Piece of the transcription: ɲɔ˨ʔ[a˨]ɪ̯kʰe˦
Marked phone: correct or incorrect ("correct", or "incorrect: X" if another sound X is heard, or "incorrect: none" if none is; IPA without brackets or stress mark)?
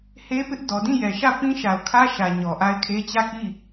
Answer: incorrect: a˦